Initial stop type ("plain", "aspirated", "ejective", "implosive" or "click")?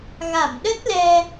implosive